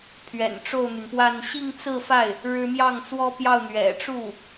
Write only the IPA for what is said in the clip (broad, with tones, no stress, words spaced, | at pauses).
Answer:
pʰɥɛ̰˨˩nʈ͡ʂo˥˩ʊ̯n̪y˩npwa˥˧n ɕi˥˧ŋt͡sɹ̩˥˧fa˥˩ɪ̯ | ɻɻ̩˥ mjɑ˥˩ŋt͡swɔ˥pjɑ˥˩ʊ̯ n̪ɥɛ̰˨˩ʈ͡ʂu˥˩